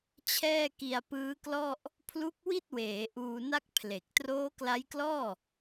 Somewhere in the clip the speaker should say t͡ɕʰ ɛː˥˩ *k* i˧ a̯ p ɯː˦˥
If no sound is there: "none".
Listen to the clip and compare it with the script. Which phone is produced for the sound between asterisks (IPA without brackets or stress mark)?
k